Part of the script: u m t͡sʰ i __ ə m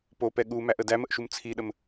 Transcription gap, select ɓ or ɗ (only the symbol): ɗ